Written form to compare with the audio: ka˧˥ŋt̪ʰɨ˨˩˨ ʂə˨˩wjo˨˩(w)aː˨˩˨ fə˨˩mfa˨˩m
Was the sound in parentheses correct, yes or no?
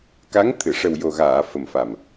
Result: no